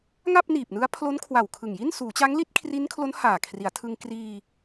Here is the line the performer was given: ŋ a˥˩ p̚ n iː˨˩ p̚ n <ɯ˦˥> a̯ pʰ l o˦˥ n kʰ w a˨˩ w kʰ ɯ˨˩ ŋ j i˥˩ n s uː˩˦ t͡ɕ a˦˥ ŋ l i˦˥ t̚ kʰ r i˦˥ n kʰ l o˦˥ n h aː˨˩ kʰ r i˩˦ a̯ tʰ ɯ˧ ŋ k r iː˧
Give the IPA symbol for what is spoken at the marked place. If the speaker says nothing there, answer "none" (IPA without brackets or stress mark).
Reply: ɯ˦˥